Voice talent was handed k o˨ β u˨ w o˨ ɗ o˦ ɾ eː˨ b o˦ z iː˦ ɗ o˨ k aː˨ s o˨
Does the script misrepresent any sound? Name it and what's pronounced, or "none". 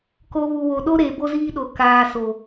none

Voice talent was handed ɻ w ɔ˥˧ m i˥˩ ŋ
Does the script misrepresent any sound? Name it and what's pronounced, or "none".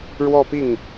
m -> p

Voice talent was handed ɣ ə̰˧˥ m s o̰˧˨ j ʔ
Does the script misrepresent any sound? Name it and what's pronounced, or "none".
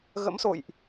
none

